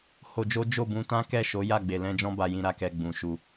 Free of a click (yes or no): yes